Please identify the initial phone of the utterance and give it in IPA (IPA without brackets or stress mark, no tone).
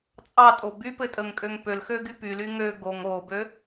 t͡sʼ